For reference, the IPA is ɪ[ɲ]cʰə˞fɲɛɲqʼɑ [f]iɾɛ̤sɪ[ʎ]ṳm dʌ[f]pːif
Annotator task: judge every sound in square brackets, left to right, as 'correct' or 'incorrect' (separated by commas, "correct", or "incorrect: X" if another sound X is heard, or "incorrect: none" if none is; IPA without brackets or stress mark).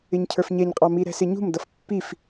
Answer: correct, incorrect: m, incorrect: ɲ, correct